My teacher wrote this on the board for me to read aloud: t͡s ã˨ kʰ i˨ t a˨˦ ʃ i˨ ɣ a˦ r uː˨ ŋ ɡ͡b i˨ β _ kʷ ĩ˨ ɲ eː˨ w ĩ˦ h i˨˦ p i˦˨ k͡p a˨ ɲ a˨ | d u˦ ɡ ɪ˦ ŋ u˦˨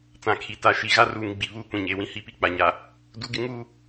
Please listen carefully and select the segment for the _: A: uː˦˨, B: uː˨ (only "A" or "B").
A